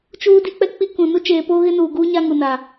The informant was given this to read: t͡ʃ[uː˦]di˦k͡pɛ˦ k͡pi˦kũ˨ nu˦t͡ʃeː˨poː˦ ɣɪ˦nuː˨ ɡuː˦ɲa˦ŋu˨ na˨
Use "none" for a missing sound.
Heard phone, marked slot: uː˦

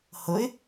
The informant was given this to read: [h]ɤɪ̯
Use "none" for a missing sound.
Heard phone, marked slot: h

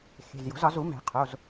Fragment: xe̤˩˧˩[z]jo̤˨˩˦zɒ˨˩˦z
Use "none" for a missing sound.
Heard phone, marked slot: z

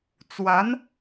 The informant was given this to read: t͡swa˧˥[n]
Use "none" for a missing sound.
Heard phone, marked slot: n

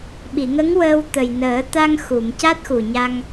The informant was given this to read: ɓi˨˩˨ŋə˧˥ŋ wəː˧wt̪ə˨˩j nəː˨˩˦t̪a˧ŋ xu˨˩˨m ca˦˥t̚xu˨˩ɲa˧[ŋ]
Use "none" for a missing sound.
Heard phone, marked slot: ŋ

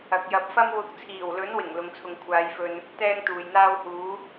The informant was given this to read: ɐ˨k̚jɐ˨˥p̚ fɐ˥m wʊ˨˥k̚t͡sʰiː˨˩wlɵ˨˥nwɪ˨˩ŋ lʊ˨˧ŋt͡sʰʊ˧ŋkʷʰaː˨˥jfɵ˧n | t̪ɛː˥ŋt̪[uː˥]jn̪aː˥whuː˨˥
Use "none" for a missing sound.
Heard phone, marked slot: uː˨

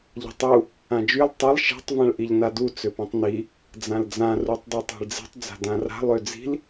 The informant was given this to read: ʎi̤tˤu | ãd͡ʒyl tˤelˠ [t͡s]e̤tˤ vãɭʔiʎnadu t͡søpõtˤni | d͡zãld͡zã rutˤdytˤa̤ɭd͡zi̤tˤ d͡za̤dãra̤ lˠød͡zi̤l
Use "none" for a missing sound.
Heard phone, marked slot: ʃ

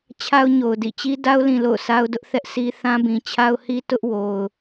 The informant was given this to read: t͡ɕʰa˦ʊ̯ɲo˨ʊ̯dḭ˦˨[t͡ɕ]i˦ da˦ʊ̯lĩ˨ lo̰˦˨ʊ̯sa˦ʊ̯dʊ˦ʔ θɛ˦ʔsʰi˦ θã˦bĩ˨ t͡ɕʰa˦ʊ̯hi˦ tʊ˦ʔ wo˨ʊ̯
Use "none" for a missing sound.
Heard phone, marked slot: t͡ɕ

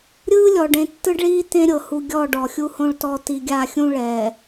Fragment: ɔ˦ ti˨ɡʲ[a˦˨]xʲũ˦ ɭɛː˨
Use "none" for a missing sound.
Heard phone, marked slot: a˦˨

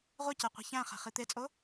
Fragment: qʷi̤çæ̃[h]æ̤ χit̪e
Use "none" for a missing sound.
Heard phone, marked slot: χ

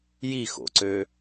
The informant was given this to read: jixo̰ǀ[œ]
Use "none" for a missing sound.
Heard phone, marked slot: ø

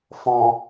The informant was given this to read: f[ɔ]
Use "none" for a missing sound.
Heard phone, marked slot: ɔ̃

